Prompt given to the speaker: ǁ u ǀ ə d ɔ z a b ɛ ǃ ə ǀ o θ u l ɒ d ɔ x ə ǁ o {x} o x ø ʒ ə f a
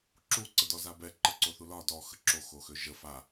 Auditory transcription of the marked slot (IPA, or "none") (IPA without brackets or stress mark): x